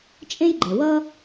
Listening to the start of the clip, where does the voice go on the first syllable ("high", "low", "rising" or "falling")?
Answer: high